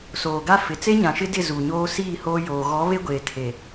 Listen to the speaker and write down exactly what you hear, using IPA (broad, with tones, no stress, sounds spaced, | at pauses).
s oː˨ ɡ a˦ f ɪ˨ t͡s e˦ ɲ ã˨ ʃ ɪ˦ d ɪ˦˨ z uː˨ ɲ oː˦ s iː˦˨ h oː˦ j oː˨ ɣ ɔ˨˦ β e˦ ɡʷ eː˨ tʰ e˨